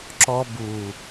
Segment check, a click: present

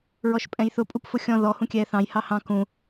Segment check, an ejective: present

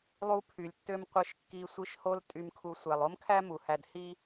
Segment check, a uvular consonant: present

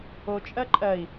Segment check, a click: present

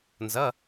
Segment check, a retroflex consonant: absent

